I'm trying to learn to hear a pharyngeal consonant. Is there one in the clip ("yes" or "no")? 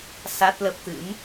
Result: no